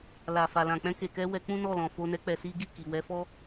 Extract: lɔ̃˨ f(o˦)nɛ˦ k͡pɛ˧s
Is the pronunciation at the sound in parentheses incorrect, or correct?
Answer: incorrect: o˧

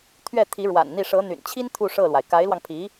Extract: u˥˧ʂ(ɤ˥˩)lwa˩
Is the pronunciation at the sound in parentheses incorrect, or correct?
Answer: correct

